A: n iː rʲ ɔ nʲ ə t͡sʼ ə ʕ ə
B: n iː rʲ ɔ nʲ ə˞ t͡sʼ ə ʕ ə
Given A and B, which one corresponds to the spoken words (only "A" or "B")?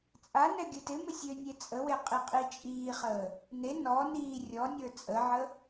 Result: B